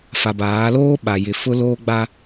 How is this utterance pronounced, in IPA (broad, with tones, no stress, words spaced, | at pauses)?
fa˨baː˨˦loː˦ ɓa˨jɪ˨ fʊ˦loː˦ɡ͡ba˦